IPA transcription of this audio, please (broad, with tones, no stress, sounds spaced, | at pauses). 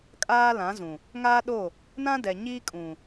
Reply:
kʼ aː˦ l ã˨˦ z ũ˨ | ŋ aː˦ ɗ o˦˨ | n ã˦ d ɛ˨ ɲ iː˦ kʼ ũ˨